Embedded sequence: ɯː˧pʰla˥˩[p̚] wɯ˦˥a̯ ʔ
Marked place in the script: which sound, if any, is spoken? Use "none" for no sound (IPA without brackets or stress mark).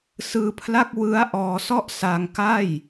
k̚